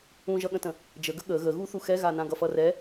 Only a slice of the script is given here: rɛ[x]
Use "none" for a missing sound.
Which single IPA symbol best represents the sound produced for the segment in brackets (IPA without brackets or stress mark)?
none